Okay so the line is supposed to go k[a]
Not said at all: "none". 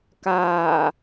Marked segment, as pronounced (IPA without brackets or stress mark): aː